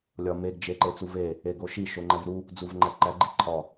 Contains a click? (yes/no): yes